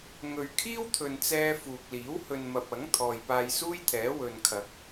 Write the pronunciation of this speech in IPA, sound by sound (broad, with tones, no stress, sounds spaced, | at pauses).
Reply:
ŋ ɵ˨ ɥ kʰ iː˥ w t̪ʰ ɵ˨ n t͡s ɛː˧ f uː˨ k̚ l iː˨˥ w h ɵ˨ n m ɐ˨ p̚ ɐ˨˥ ŋ t̪ʰ ɔː˨ j p aː˧ j s uː˥ j t̪ʰ ɛː˨˥ w ɵ˨ n kʰ ɐ˨˥ k̚